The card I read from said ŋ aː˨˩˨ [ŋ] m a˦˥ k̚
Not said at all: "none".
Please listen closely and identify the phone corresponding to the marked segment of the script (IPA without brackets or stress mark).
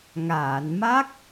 n